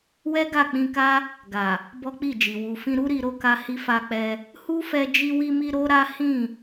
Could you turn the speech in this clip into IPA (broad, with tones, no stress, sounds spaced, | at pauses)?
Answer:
w ɛ˦ ɡ a˦˨ k͡p ĩ˧ k a˦ | ɡ a˨ | b ɔ˦ k͡p i˦˨ d͡ʒ i˨ w u˨ f ĩ˧ ɾ u˦ ɾ i˧ ɾ o˧ k a˧ h i˧ f a˧ k͡p ɛ˧ | h u˦ f ɛ˧ d͡ʒ i˧ w i˧ m i˧ ɾ o˦ ɾ a˦ h ĩ˦˨